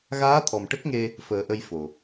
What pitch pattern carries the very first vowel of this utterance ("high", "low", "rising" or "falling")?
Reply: rising